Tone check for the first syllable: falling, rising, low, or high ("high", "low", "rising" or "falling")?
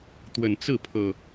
low